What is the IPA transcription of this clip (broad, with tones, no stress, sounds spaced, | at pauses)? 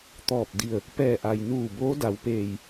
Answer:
t̪ ɔː˧˩ p̚ d i˧˩ ə̯ | p ɛː˧˩ ʔ a˩ j n uː˧˩ b oː˧˥ d a˩˧ w p eː˧˩ j